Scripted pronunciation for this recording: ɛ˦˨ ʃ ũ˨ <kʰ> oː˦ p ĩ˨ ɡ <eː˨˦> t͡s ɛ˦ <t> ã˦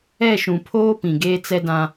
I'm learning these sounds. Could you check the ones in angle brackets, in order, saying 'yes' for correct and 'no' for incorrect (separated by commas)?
no, no, no